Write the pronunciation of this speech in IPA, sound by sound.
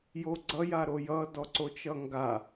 j o ɡ͡ǀ ʌ j a ɾ o j ʌ d ɔ ǀ o t͡ʃ ʌ ŋ ɡ a

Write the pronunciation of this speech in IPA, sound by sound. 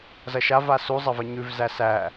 z ɐ ʃ a v a s u zˤ ɐ v ə ɲ ʉ v z æ s æ

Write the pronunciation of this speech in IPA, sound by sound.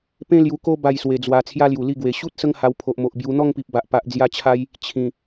p ẽ˦ l j u˧ k o˦ b a˥˧ j s w e˧ d͡z w a˧ t͡sʰ j a˦ l j u˨˩ l i˥˧ ɡ w e˨˩ ɕ u˦ t̚ s ə˦ ŋ h a˧ w pʰ o˨ ʔ m o˨ ʔ b j u˧ n̪ ɔ˥˧ ŋ p i˨ p̚ b a˨ ʔ p a˨ ʔ d͡z j a˧ t͡ɕʰ a˧ j | t͡ɕʰ ĩ˨˩

